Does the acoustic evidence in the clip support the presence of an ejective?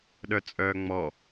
yes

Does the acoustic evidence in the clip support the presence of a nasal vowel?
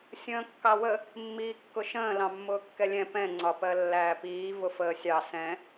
yes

